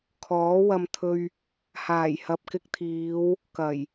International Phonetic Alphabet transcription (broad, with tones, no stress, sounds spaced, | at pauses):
kʰ ɔː˨˥ w ɐ˧ m t̪ʰ ɵ˧ ɥ | h aː˨˩ j h ɐ˨ p̚ k ɪ˧ k̚ t̪ʰ iː˨˧ w | k ɐ˨˩ j